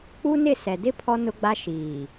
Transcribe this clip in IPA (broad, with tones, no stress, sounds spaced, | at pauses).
k͡p u˦ n ɪ˦˨ s ɛ˨ d ɪ˦ pʰ ɔ˦ n ʊ˦ ɡ͡b a˦ ʃ iː˨